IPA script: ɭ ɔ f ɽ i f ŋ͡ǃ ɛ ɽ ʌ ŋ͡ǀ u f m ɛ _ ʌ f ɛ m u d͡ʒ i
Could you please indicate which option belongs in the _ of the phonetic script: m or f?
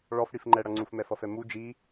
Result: f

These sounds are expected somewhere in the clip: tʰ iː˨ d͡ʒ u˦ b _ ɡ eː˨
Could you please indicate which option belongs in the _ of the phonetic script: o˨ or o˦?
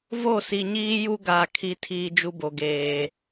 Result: o˨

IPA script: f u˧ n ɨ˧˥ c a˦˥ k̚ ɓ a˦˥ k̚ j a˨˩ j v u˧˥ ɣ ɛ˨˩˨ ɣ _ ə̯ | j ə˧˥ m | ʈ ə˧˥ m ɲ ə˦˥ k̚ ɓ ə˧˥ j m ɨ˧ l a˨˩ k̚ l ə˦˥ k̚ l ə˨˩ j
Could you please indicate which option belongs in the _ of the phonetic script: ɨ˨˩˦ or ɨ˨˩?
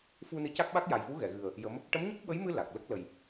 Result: ɨ˨˩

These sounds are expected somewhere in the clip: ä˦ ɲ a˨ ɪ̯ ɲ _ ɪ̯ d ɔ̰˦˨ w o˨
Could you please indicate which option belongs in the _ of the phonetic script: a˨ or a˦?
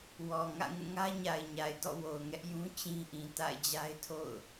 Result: a˨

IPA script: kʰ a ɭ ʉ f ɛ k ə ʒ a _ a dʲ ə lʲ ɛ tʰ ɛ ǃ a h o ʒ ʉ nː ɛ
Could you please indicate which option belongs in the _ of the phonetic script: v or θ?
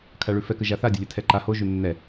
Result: θ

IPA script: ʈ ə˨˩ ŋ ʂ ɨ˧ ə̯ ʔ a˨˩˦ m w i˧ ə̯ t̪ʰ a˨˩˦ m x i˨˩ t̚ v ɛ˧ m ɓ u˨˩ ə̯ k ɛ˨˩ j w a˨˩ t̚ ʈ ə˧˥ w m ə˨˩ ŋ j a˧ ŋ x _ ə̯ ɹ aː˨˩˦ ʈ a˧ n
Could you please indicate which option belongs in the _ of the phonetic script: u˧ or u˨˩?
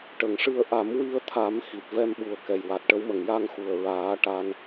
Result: u˨˩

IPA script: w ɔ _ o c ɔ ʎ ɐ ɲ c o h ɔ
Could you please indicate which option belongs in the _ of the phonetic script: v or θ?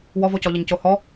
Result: v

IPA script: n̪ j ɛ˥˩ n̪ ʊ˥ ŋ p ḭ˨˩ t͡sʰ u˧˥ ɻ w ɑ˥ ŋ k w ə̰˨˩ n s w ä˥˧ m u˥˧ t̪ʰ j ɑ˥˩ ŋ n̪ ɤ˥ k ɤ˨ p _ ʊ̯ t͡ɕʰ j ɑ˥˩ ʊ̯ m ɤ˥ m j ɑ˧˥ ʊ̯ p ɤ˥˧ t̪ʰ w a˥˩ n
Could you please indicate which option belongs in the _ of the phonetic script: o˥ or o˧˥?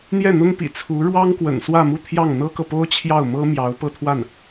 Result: o˥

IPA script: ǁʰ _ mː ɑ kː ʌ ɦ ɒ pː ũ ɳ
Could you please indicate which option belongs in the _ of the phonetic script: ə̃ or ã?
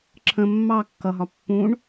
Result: ə̃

